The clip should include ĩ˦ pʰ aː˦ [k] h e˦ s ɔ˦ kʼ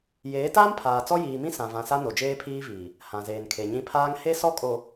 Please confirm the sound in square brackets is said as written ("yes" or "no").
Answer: no